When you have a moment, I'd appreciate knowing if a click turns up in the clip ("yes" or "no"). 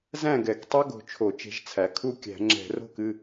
yes